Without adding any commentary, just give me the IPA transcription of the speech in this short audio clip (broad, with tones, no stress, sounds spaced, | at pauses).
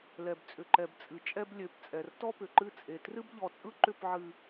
l ɛ˨ b t͡sʼ ʏ˨ ǃ ɛ˨ b t͡sʼ ɨ˨ t͡ʃʼ ɛ˦ b lʲ ø˨˦ p t͡sʼ ɛ˨ r t ɔ˦ p ʏ˨ ǃ ɨ˦ t͡sʼ e˨ t r ɨ˦ b ʎ ɔ˨ t͡sʼ ɯ˦ ǃ ʏ˦˨ p ʕ ɨ˨